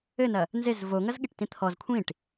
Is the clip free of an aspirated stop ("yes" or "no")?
no